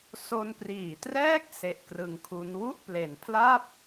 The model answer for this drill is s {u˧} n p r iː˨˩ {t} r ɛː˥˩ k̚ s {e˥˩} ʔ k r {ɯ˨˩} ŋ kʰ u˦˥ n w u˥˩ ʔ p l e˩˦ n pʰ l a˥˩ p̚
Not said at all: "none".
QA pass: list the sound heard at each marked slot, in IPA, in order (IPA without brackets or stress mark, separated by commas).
o˧, t, e˦˥, ɯ˧